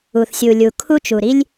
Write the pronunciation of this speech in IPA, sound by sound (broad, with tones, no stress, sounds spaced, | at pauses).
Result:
u˩ θ sʲ u˩ lʲ u˩ kʰ u˥ t͡ʃ u˩ ɾ i˥ lʲ